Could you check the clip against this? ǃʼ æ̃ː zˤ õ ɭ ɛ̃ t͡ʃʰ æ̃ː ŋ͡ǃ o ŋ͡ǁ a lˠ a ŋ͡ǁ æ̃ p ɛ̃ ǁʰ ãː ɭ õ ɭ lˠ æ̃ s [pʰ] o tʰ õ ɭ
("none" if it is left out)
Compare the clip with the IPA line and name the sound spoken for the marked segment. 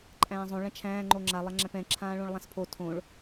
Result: pʰ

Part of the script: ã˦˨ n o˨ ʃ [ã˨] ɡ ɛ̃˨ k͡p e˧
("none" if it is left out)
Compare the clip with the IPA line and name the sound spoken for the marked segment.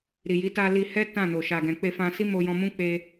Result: a˨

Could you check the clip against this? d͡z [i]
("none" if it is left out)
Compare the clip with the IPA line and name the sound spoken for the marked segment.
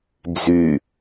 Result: y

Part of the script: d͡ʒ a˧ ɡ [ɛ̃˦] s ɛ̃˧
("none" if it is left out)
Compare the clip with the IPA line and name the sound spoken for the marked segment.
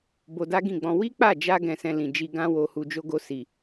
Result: ɛ̃˧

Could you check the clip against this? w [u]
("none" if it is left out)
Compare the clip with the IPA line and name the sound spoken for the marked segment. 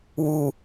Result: u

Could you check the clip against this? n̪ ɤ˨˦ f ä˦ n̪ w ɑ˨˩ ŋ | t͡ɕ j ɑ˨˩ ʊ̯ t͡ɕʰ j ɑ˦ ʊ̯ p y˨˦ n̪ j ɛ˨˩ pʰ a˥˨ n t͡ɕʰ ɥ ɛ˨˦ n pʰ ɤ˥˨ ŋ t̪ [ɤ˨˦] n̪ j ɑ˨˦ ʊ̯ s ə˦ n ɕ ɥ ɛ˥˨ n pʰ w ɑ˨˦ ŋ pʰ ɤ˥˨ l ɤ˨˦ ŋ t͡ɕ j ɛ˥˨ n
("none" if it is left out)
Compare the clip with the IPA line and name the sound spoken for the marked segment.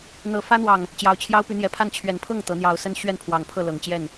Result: ɤ˨˦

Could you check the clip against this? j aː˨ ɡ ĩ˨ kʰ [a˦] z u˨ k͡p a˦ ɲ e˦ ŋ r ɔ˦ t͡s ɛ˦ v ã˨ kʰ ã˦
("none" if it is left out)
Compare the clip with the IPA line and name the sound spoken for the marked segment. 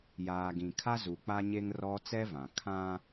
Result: a˦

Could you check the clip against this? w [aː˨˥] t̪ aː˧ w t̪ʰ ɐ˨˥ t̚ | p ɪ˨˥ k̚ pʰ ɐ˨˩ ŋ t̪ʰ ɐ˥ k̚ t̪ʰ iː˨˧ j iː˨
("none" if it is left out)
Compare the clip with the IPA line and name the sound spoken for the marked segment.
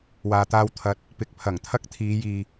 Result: aː˨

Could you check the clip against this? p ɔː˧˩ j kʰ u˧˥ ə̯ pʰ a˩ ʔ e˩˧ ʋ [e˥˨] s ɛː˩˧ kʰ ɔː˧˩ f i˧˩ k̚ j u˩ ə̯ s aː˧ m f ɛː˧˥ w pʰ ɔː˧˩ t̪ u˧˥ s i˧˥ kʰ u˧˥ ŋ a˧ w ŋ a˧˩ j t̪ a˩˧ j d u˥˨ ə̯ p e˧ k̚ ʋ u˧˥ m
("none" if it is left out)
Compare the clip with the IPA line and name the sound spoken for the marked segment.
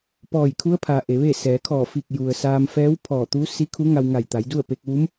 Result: e˥˨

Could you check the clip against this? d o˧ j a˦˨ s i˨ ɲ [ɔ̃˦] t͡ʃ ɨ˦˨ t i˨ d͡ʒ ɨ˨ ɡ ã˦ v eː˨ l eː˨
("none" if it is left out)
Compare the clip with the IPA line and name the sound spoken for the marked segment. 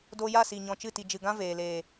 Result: ɔ̃˨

